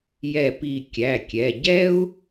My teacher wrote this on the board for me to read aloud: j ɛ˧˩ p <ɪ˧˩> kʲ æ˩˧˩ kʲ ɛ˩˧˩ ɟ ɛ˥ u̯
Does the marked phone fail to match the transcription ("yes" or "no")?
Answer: yes